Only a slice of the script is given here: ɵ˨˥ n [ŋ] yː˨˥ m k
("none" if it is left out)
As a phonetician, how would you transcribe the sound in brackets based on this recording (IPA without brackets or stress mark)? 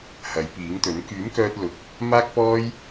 k